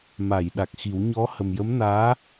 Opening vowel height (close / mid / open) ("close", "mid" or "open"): open